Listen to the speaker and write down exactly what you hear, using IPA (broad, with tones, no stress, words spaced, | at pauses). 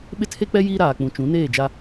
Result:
ɓɪ˦tʰe˦k͡pɛ˦ jiː˦ɾaː˨ k͡pũ˨t͡ʃũ˨˦neː˦˨d͡ʒa˦